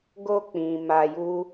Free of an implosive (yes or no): yes